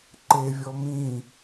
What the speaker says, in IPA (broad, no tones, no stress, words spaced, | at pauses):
ǃevʲɔ mĩ